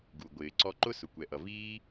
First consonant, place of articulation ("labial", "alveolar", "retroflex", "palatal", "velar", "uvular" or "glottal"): velar